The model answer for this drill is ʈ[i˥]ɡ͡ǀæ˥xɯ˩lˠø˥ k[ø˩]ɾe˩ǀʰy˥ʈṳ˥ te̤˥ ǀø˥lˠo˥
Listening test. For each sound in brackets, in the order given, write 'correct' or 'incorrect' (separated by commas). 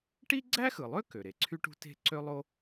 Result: correct, correct